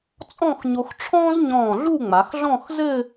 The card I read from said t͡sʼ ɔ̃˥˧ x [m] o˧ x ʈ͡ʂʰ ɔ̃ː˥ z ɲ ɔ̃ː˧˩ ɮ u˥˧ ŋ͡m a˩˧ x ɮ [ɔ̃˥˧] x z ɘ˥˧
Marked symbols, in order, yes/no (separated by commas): no, yes